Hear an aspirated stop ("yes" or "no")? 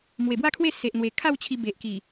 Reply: yes